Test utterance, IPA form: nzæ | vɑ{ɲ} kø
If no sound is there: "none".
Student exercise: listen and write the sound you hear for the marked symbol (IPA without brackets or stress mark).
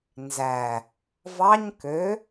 ɲ